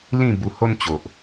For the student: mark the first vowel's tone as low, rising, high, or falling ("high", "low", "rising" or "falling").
falling